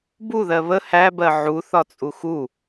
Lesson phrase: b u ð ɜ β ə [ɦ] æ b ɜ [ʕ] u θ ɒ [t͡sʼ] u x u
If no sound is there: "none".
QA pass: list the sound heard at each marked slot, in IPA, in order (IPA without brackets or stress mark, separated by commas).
h, ʕ, t͡sʼ